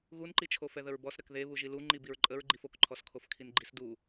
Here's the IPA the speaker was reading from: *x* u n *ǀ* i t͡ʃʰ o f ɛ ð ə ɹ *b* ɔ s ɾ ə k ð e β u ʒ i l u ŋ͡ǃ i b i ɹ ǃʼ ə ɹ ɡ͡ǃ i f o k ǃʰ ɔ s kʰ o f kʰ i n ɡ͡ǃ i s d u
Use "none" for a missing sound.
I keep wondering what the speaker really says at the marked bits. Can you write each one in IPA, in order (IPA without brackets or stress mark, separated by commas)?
ɣ, ǃ, b